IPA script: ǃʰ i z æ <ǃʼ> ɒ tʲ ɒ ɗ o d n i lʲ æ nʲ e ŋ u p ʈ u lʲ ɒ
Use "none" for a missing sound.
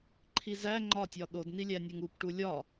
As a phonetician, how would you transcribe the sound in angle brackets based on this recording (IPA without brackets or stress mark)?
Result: ŋ͡ǃ